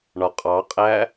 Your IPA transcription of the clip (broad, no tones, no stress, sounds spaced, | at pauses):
ɳ ɒ qʼ ɑ qʼ æː